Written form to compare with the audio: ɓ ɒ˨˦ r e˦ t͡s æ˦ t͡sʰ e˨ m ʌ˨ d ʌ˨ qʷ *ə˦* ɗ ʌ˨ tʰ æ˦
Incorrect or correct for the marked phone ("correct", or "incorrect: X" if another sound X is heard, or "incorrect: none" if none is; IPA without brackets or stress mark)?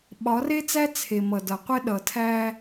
incorrect: ɛ˦